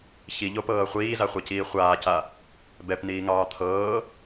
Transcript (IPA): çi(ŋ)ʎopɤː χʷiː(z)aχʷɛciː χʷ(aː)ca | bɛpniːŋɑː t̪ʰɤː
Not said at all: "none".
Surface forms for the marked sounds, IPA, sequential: none, z, aː

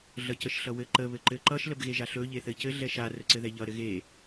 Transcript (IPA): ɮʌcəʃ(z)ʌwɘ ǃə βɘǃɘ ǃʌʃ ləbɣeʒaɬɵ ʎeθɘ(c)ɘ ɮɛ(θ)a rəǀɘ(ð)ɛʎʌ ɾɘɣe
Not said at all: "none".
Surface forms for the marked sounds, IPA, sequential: ɬ, c, ʃ, ð

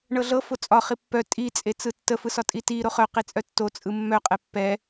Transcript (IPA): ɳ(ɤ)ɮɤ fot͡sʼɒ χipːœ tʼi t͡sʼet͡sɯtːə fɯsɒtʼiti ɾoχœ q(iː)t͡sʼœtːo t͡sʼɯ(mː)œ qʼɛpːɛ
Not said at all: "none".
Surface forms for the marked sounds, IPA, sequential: ɤ, i, mː

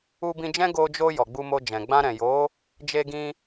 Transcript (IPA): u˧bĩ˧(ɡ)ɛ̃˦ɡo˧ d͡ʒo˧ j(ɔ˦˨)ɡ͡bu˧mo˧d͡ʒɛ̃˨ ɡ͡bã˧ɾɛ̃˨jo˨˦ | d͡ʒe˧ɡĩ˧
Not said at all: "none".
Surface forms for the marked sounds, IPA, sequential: d͡ʒ, ɔ˨

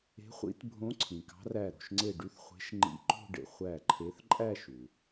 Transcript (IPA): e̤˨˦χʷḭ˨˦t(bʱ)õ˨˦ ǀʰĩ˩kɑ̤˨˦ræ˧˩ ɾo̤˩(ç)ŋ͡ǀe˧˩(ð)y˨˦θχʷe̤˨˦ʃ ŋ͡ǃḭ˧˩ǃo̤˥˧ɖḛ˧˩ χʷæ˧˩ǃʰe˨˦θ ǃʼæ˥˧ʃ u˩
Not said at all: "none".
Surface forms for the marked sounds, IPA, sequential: bʱ, ʃ, ɖ

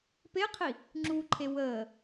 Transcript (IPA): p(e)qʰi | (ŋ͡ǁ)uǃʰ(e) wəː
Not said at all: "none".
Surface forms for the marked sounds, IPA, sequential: e, ŋ͡ǁ, e

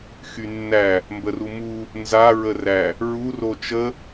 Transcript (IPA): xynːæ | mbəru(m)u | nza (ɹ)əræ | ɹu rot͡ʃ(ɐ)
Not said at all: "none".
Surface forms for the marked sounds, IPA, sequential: m, ɹ, ə

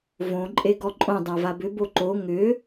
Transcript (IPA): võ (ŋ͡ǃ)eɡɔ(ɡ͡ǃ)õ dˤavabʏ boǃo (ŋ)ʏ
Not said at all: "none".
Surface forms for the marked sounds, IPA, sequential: ǃʼ, ǃʼ, ŋ

